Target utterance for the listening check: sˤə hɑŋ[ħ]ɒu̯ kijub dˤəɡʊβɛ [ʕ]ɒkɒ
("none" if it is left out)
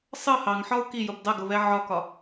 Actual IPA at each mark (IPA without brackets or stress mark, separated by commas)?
ħ, ʕ